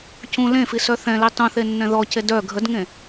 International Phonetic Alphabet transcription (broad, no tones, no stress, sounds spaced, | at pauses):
c ũ l ẽ f i s œ θ ɛ̃ l i tˤ ũ θ e nː ɛ̃ ð ɔ c e d œ ɡʱ ə d ŋ ẽ